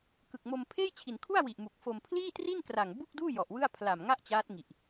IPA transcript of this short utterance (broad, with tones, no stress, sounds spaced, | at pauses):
k ɯ˨˩ k̚ m o˧ m pʰ eː˥˩ j t͡ɕʰ i˨˩ n kʰ u˥˩ a̯ w i˨˩ ʔ m u˨˩ k̚ f o˧ m pʰ l iː˥˩ t r i˥˩ n k r a˨˩ ŋ b u˥˩ k̚ d uː˥˩ j ɔ˨˩ ʔ w ɯ˥˩ a̯ pʰ l a˨˩ m ŋ a˥˩ ʔ t͡ɕ aː˦˥ t̚ ŋ i˨˩ ʔ